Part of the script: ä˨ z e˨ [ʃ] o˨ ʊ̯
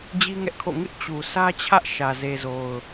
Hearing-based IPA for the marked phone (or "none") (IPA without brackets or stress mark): z